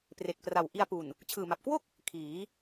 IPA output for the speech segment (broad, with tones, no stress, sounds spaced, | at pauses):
p r e˨˩ k̚ p r a˨˩ w ʔ i˧ a̯ p u˨˩ n | t͡ɕʰ ɯː˨˩ m a˨˩ p̚ k w o˥˩ k̚ | kʰ iː˩˦